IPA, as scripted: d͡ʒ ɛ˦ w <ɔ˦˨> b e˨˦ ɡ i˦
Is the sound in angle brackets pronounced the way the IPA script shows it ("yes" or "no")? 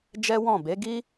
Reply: no